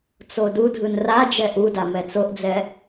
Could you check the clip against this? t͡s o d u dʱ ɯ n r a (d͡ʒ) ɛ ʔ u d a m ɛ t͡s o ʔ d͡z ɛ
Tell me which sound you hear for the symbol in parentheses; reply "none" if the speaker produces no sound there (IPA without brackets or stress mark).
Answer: d͡ʒ